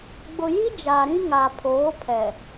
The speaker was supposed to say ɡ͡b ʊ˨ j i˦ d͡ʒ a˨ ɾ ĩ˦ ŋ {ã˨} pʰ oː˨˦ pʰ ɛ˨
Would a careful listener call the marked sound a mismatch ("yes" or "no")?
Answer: yes